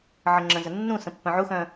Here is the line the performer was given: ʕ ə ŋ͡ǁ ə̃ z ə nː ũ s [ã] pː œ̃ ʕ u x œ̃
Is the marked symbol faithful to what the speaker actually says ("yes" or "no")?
no